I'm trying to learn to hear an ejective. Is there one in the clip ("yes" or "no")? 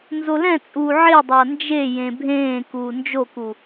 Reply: yes